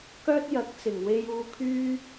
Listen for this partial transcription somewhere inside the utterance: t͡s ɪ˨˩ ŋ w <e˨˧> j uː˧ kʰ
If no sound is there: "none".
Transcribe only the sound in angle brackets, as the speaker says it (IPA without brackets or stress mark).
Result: e˧